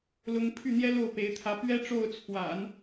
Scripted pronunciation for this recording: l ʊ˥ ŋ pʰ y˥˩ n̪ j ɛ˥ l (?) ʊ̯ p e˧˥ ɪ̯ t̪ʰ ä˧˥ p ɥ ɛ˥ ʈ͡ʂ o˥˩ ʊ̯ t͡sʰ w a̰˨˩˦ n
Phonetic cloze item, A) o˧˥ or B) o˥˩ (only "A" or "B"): B